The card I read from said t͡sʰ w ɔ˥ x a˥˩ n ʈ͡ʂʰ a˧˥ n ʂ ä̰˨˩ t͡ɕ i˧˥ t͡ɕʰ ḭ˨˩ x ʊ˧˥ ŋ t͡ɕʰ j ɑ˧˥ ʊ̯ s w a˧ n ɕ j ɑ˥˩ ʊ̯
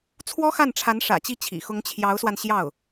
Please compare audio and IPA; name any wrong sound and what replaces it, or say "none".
none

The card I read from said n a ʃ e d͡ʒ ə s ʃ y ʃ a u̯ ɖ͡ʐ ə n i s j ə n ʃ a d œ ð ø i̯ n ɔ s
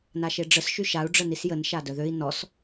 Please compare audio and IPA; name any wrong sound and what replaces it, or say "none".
d͡ʒ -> ɖ͡ʐ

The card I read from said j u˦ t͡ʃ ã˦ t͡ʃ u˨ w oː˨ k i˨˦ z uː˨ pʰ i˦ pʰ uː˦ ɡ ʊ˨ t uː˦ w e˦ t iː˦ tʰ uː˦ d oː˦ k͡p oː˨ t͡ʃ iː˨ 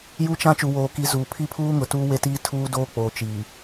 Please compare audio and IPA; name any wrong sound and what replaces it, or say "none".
ɡ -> ŋ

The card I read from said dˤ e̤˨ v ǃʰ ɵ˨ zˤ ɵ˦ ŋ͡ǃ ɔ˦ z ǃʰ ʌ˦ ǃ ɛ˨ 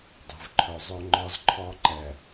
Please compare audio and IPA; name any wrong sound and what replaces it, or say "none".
ʌ˦ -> ɔ˦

